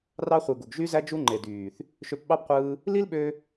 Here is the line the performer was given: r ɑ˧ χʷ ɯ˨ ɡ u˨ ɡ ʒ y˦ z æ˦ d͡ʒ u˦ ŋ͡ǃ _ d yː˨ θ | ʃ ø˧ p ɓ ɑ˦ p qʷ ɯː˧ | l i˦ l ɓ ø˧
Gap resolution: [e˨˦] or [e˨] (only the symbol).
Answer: e˨